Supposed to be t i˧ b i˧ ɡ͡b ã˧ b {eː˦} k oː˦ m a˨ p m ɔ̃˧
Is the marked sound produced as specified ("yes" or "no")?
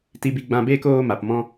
yes